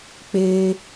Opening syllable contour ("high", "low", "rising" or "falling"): high